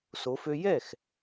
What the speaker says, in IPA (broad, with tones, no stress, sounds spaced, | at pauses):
s o˧˥ f ø˥ j ɛ˥˨ x